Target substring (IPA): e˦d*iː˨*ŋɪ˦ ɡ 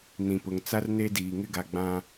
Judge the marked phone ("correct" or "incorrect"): correct